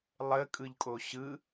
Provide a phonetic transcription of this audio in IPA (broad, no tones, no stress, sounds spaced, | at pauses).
lˠ ə kʼ ɯ ʎ kʼ o ɕ ɯ